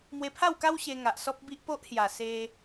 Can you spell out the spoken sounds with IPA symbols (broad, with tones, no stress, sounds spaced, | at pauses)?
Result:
m w e˧ pʰ a˥˧ w k a˦ w ɕ e˧ ŋ a˨ ʔ s ɔ˦ p̚ b i˦ ʔ p o˦ ʔ h j a˨˩ s e˧